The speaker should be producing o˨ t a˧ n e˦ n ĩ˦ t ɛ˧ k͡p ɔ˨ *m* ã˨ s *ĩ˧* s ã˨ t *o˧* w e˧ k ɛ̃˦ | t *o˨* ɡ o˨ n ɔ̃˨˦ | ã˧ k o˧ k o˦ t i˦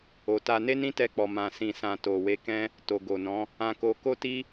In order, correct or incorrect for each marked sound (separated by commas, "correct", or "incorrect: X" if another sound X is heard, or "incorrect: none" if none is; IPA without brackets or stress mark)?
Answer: correct, incorrect: ĩ˨, incorrect: o˨, correct